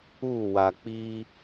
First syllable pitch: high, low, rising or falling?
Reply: falling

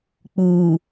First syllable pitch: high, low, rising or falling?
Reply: low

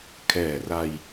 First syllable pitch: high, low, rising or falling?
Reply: low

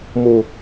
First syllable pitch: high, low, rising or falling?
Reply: low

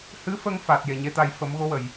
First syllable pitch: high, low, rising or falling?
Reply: rising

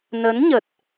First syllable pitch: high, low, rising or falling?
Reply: rising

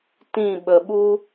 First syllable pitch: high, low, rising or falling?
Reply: falling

